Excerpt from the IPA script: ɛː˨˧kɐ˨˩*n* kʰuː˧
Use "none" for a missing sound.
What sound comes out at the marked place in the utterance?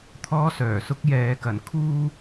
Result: n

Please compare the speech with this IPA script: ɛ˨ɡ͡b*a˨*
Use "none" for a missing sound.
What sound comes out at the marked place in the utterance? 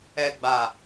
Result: a˨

